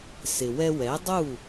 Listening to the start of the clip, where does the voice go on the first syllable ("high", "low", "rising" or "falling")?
low